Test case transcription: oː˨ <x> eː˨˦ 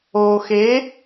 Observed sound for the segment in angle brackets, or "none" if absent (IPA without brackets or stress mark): x